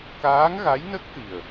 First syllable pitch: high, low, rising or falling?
rising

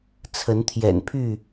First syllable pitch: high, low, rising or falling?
rising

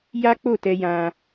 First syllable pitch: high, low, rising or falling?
high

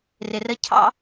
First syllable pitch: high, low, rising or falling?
low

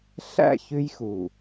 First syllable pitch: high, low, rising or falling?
falling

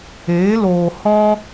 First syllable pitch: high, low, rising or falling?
rising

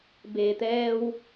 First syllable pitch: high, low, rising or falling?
low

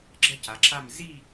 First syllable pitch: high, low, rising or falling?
falling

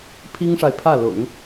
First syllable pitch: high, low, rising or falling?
high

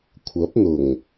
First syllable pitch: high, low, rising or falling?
rising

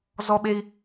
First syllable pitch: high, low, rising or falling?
high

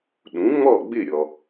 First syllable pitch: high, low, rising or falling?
rising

